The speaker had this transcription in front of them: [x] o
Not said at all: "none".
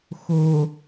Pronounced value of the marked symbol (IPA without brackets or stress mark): x